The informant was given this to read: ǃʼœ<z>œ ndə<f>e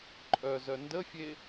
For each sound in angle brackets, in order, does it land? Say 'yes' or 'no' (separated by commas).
yes, no